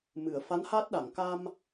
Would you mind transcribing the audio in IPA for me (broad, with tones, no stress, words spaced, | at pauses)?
mɨ˨˩˨ə̯fa˧˥nhaː˦˥t̚ɗa˨˩˨ŋ ka˧m